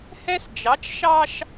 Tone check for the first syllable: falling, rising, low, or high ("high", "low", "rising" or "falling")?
high